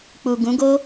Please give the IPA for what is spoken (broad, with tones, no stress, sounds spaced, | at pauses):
k͡p u˨ ɡ ũ˨˦ ɡ o˦